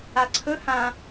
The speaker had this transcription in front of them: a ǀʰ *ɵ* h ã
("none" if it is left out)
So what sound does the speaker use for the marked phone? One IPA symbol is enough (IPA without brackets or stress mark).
ɵ